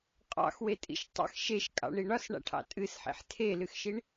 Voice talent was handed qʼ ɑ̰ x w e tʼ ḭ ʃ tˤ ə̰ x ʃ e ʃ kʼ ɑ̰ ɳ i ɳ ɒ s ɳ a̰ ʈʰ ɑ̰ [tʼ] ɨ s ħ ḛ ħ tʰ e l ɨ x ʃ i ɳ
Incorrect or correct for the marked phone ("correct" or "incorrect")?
correct